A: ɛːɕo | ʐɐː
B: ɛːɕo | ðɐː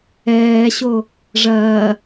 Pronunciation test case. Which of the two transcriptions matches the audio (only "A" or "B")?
A